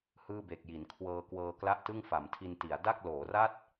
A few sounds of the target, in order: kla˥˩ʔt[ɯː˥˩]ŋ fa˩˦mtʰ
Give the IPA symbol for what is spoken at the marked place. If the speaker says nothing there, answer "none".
ɯ˥˩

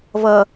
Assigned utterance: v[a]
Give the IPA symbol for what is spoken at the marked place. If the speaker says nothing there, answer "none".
ʌ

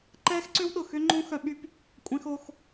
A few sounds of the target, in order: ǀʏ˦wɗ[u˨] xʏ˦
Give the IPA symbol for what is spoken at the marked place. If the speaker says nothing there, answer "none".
ʊ˨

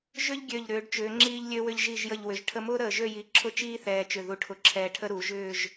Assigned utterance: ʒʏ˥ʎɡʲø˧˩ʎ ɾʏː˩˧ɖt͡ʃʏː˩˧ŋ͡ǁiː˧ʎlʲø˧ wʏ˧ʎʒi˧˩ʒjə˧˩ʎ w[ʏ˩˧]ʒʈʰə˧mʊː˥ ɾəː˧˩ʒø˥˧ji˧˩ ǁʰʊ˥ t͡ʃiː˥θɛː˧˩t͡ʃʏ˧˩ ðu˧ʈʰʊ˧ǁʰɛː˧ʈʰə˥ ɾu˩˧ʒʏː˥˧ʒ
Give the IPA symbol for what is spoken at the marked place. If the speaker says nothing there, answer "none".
ʏ˩˧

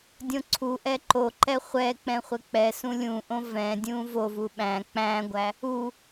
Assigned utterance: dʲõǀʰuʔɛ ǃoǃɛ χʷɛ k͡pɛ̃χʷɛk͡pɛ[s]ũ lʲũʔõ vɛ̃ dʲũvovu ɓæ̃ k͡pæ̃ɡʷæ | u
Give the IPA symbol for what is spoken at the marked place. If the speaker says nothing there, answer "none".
s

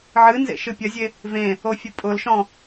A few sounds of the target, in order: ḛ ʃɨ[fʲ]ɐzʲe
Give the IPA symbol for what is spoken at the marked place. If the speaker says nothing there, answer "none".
pʲ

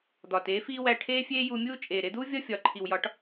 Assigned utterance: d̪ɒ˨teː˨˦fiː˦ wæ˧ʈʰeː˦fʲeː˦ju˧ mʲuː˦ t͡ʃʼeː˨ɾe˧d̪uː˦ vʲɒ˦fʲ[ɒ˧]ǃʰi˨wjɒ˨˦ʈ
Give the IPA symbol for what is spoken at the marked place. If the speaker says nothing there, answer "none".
ɒ˨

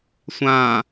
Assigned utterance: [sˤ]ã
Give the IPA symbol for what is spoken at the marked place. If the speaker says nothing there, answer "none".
sʷ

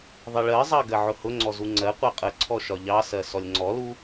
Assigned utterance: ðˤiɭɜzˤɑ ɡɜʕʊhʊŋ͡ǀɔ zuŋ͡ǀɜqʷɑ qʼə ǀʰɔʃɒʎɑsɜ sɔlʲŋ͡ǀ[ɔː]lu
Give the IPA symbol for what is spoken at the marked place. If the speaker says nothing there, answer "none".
ɔ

